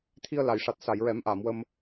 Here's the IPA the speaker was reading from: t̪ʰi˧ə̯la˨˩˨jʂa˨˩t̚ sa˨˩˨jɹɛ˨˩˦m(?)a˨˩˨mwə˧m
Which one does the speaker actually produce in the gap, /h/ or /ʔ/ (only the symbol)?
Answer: ʔ